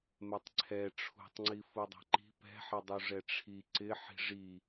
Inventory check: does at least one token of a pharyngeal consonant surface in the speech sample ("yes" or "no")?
yes